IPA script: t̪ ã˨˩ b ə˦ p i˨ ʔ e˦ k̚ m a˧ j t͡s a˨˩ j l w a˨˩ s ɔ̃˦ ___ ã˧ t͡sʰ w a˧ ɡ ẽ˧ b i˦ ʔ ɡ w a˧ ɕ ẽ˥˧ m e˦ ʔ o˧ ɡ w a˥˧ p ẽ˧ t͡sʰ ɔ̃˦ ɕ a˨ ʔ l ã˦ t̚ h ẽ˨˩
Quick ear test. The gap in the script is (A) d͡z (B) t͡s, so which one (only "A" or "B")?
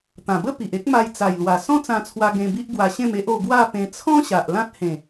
B